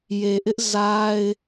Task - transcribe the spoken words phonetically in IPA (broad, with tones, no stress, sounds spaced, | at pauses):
j e˨ ʔ ɪ˦ ʔ z a˦ ɪ̯